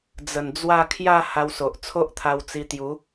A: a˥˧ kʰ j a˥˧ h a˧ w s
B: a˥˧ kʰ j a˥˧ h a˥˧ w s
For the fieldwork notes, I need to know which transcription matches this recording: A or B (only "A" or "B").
A